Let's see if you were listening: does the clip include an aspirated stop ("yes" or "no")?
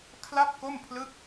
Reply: yes